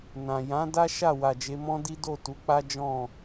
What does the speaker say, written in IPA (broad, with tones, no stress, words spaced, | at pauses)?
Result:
nã˨ jã˨˦da˦ ʃa˦˨ wa˨d͡ʒe˨˦mɔ̃˦ di˦do˦˨tu˨˦k͡pa˦ d͡ʒɔ̃˦˨